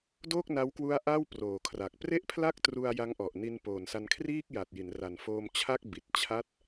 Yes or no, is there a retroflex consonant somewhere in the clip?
no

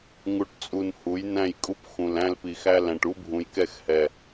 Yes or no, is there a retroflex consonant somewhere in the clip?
yes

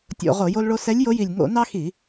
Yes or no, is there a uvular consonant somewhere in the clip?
yes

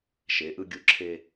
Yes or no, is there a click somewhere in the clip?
yes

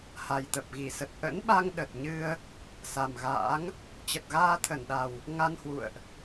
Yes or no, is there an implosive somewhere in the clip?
yes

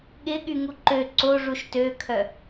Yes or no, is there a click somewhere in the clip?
yes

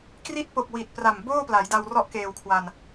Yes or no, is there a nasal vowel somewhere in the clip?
no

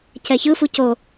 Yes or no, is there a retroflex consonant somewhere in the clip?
no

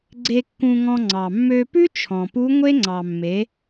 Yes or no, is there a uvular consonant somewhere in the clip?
no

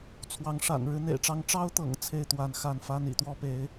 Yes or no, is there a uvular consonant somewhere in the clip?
no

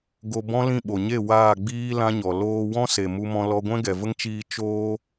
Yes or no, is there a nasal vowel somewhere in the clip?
yes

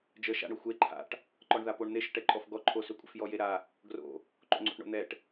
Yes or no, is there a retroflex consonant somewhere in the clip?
yes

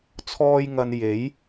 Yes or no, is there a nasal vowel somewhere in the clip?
no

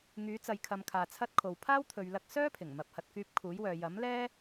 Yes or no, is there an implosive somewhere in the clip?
no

